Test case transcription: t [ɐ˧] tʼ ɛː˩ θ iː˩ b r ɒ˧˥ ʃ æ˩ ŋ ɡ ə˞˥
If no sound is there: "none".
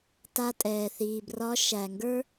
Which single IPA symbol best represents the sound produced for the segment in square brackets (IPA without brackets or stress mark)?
a˧